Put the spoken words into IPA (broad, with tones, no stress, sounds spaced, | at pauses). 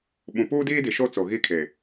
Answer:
ɓ ũ˨ p uː˦ d iː˦ d i˨ ʃ o˦ t͡s o˨ ɣ i˦ kʰ e˨